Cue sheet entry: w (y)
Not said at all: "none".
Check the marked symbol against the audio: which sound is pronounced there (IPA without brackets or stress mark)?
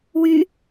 y